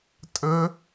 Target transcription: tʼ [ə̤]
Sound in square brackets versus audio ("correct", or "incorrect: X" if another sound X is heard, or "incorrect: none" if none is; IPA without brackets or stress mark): incorrect: ə